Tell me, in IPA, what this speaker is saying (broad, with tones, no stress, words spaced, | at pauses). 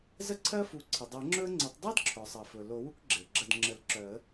zə˦ǀʰɜ˦fu˩˥ ǀʰə˩dˤɜ˨˩˦ŋ͡ǁɵ˦ə̯ŋ͡ǀə˨˩˦tˤ dˤɜ˦dǁʰœ˩sˤɜ˩fɵ˩ lo˨˩˦wu˦k ɡ͡ǁe˩ ɡ͡ǁə˧˩dŋ͡ǁə˨˩˦lǁœ˨˩˦ə̯